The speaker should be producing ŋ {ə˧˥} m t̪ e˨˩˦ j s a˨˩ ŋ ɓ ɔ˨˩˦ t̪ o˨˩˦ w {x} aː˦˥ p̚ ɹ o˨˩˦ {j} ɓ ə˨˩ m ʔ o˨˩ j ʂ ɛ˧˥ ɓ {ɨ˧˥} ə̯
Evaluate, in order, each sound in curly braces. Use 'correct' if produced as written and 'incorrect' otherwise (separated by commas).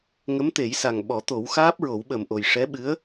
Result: correct, correct, incorrect, correct